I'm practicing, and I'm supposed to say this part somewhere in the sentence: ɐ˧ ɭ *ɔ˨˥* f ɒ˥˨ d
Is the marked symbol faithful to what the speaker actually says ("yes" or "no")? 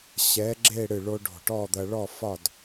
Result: no